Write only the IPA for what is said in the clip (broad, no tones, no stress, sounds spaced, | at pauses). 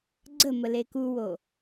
ɡ͡ǀ ə m ə l e k u w o